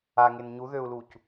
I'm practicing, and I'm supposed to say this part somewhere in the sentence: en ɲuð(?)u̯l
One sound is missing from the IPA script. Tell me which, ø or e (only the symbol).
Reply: ø